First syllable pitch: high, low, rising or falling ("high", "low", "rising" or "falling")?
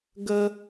high